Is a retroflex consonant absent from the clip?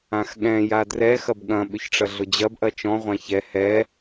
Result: no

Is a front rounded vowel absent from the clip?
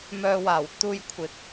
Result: no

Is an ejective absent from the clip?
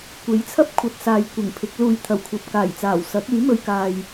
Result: yes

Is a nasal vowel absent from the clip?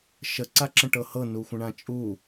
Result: no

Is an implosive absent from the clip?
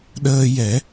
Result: no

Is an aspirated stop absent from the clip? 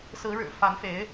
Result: yes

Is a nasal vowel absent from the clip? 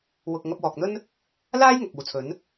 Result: yes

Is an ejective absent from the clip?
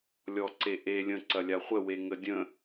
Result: yes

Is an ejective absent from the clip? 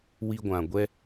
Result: yes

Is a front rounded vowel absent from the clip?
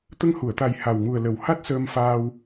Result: yes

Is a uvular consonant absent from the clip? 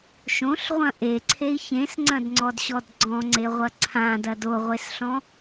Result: no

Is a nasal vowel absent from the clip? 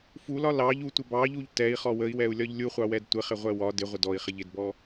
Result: yes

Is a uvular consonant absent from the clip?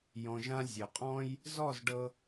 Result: no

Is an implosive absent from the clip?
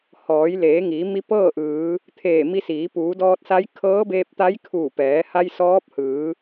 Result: yes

